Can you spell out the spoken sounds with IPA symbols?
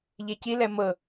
ʎ e c i l ɛ m ɤ

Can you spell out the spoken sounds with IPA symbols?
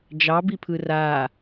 d͡ʒ ɑ b i pʰ ɯ r a

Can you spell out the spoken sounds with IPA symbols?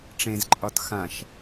ʈ͡ʂ ẽ z ǃʼ ɒ t x ã ʃ

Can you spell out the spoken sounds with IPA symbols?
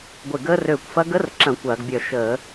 ɡʷ ɪ˧˩ ɡ əː˦˥ r øː˧˩ kʷ f ɐ˦˥ ɡ ə˦˥ r ǁ ɐ̃˧˩˧ kʷ ɐː˧˩˧ ɡ bʲ œ˧˩ ʃ əː˧˩˧

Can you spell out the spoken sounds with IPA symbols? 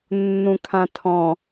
nː ũ kʰ ã tʰ ɔ̃

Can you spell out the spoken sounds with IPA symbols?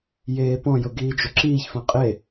j eː p ɔ̃ j ʊ ɡ iː d͡ʒ ʊ ǁ iː ç f ã qʼ e

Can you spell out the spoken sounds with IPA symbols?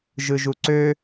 ʒ ɯ ʒ u ǀ ø

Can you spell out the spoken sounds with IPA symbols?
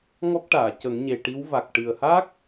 ŋ ɔ˦˥ k̚ ʈ aː˨˩˨ c ə˨˩˦ ŋ ɲ e˨˩ ʈ i˧˥ w v a˨˩ k̚ ʈ ɨ˨˩ ə̯ h a˦˥ k̚

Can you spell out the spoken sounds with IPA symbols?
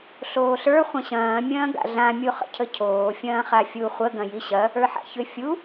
ɬ oː ɬ ə˞ χʷ ɐ̃ ɕ ɐ̃ː mʲ ɐ̃ː ɡ a̰ ɮ ã mʲ u χ ə̰ cʰ ə cʰ oː fʲ ɐ̃ː χ a fʲ u χʷ ə ɡ ɐ̃ j i ɕ ɐ | ə˞ ħ a̰ ç ʏ fʲ u

